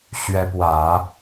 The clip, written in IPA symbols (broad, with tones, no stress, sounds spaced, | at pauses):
ɕ ɥ ɛ˧˥ p w ä˨˩˦